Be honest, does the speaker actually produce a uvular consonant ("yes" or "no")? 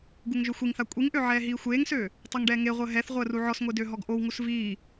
yes